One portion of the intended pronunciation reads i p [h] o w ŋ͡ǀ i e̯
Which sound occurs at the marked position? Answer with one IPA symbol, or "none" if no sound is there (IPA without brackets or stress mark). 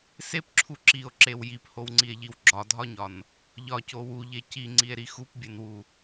h